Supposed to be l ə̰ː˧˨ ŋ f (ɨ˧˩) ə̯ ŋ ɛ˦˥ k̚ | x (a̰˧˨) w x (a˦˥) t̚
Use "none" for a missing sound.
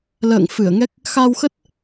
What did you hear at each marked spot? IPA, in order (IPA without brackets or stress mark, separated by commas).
ɨ˧˩, a˧, ə˦˥